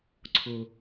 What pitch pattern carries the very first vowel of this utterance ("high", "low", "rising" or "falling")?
low